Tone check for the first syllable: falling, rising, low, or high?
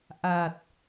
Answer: low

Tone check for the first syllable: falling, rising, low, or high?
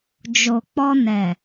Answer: low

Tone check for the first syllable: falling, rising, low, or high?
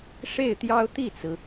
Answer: falling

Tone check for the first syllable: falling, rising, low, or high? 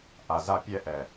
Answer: low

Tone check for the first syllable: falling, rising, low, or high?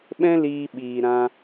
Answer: high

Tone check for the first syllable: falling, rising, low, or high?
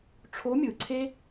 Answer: rising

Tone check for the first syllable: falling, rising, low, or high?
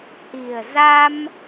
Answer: low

